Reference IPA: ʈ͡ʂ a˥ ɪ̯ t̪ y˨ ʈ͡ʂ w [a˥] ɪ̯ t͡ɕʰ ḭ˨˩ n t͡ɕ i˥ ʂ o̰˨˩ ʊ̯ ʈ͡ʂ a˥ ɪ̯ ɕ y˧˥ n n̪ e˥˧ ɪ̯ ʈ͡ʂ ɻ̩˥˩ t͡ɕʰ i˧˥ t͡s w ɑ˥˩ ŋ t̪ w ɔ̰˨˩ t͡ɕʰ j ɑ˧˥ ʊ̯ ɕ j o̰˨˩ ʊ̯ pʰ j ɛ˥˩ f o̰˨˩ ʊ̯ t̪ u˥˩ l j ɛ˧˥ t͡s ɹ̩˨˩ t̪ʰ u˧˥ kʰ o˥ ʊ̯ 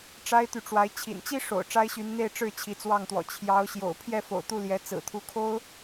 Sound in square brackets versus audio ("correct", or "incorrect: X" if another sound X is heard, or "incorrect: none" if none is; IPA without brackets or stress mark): incorrect: a˧˥